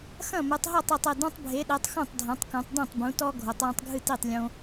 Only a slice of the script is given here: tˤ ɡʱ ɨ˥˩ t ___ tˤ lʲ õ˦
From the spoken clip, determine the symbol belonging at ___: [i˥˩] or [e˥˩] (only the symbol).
i˥˩